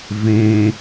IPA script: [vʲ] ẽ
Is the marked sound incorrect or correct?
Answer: incorrect